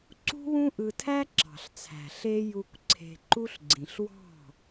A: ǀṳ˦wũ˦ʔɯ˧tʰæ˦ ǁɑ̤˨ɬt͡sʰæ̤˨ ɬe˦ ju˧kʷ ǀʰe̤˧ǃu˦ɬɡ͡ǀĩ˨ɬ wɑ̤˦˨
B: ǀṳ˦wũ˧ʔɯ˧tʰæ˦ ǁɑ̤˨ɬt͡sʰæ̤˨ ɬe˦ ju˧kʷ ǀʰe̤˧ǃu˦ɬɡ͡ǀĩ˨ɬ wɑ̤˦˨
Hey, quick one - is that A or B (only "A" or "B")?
A